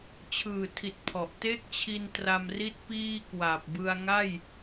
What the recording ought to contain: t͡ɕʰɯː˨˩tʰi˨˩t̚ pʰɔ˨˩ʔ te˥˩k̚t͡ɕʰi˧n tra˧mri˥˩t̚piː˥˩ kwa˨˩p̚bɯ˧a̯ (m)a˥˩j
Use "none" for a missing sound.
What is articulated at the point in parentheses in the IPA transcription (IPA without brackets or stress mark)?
ŋ